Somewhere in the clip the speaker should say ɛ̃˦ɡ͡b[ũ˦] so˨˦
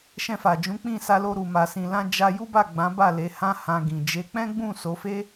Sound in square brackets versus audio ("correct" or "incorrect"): incorrect